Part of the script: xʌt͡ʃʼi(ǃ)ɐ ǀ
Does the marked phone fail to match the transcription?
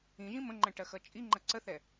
yes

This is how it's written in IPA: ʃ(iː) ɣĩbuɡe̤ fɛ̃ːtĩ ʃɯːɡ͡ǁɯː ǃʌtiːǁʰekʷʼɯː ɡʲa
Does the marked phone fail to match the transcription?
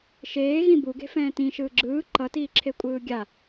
yes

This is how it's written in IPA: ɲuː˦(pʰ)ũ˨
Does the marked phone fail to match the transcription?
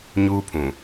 no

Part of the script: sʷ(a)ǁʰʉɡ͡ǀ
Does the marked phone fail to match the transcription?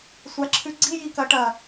no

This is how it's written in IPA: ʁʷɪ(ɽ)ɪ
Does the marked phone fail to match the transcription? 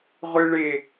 yes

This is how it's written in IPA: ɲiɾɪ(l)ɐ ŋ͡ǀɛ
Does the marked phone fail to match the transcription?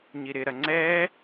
yes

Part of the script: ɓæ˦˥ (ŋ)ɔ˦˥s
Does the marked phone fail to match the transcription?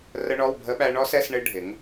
yes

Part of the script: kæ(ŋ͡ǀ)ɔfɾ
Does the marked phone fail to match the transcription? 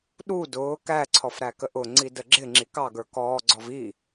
yes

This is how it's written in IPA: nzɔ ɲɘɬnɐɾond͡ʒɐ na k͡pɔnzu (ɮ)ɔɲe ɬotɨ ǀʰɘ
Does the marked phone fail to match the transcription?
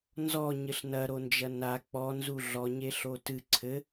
no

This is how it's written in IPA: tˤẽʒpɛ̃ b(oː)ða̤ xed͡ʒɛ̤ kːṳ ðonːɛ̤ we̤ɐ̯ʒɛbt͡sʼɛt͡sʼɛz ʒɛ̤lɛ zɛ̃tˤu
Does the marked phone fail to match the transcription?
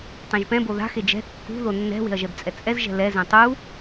yes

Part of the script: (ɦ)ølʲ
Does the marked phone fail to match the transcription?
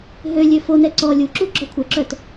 no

